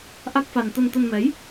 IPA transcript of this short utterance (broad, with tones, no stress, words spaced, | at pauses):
ʔa˦˥k̚fa˧n t̪ə˧nt̪ə˧nmɛ˨˦j